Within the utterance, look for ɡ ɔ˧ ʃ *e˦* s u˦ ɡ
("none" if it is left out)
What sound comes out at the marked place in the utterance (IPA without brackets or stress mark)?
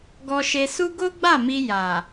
e˧